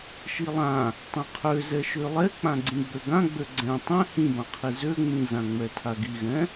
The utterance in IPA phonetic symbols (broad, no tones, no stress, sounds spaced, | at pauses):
ʃ i lˠ ã | tˤ ɛ̃ qʰ ø z ɛ ʃ ø lˠ ɛ k͡p ã ɡ͡ǀ ĩ ɡ͡b ø ɡ ã ɡ͡b ø ɡ͡ǀ ɛ̃ tˤ ɛ̃ h ĩ b ã qʰ i z ø ŋ͡m ĩ z ã ŋ͡m ɛ tʰ a ɡ i ɣ ɛ̃